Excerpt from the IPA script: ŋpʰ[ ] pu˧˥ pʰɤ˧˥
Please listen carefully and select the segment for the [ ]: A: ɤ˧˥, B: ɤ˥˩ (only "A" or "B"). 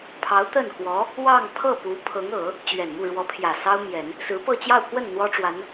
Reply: B